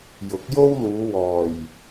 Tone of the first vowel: rising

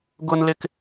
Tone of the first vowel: high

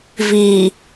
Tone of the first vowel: low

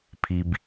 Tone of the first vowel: low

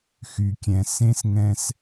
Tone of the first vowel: low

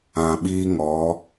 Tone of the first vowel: low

